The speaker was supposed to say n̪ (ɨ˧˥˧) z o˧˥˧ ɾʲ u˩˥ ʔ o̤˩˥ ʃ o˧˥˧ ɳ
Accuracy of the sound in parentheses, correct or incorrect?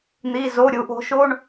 incorrect